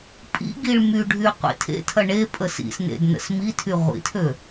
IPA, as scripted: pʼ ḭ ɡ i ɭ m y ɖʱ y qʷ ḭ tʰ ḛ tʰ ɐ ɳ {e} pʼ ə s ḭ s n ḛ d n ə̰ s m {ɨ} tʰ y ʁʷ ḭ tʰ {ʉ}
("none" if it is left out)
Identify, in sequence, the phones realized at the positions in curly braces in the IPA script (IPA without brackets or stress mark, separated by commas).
e, i, ø